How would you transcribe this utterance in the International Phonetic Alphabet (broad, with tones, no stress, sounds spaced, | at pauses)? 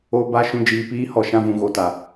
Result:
o˧ b a˦˨ ʃ ũ˧ d͡ʒ iː˨ p iː˦ h ɔ˧ ʃ ã˦ v ũ˧ ɣ o˧ t a˨